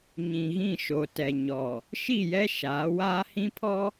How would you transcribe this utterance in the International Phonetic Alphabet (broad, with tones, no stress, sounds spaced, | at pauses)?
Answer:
ɲ ĩ˨ ɣ ĩ˦˨ ʃ o˨ t ɛ˨ ɲ ɔ˨ | ʃ i˦˨ j ɛ˦ ʃ aː˨˦ w aː˦ h ĩ˦ pʰ ɔ˦